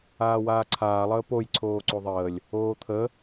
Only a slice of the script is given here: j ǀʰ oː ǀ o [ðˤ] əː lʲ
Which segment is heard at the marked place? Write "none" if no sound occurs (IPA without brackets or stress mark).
ðˤ